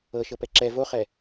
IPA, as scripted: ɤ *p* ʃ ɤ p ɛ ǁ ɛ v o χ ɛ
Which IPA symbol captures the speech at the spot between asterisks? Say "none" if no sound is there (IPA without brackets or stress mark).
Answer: none